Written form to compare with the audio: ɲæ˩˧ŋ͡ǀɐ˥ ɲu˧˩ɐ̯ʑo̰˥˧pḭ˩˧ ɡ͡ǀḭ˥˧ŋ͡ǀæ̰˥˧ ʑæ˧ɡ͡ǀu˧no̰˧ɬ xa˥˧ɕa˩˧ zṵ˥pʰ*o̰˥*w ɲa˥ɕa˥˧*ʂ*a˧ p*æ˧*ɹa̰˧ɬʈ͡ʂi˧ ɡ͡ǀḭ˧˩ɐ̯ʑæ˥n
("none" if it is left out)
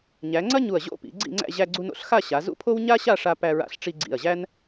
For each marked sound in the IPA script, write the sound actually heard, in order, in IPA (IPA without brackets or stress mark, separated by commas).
o˥, ʂ, æ˧